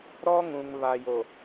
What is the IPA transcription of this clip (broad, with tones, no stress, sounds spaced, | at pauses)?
ɾ ɔ˦ ŋ ũ˨ ŋ β a˨ j o˨